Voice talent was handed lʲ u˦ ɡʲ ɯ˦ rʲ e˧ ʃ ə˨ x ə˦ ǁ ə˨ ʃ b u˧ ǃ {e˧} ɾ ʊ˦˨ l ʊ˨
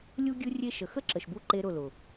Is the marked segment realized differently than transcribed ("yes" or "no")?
yes